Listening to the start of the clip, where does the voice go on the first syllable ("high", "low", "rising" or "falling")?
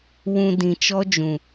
low